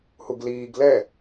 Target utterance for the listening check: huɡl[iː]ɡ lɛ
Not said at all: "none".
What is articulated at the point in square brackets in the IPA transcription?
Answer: iː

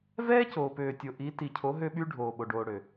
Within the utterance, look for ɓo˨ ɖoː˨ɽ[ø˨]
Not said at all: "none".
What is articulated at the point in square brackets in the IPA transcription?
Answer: ø˨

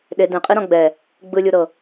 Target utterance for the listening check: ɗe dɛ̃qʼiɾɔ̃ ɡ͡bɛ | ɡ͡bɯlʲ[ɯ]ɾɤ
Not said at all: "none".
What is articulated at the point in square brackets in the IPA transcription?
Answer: u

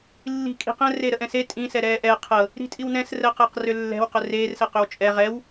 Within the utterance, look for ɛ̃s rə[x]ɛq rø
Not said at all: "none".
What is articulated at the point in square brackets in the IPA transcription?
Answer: q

